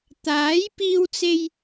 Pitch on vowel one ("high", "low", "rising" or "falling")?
rising